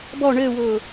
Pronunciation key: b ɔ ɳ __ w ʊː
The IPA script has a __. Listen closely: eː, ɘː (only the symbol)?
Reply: ɘː